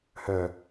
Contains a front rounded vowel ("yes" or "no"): yes